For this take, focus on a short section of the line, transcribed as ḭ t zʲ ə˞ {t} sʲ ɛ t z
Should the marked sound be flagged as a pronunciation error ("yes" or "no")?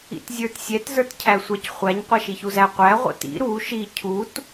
no